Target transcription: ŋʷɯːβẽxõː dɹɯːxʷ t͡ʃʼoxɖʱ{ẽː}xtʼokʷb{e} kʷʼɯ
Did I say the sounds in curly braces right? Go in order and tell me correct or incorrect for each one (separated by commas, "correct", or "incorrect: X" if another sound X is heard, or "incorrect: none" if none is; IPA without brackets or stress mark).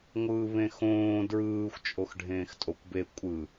correct, correct